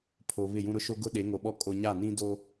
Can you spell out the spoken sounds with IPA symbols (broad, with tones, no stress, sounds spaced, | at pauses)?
pʰ oː˨ β ɪ˦˨ j ũ˦ ɾ ʊ˦ ʃ o˦ ɡ ʊ˦ ɗ e˨˦ ŋ o˨ ɓ ɔ˦ kʼ o˦ ɲ a˦˨ n ĩ˦ d o˦